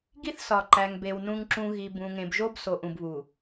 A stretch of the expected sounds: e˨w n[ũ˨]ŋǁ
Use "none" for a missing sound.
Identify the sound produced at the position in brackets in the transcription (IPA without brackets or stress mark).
ũ˨